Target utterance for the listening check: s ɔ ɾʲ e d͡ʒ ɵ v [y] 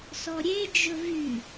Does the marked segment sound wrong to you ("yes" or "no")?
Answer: no